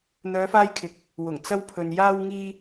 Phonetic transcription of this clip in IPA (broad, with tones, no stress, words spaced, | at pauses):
n̪œː˨˧faː˧jkʰɪ˨k̚ | wʊ˨˩ŋt͡sɐ˧wpʰɵ˨n jaː˧wŋiː˧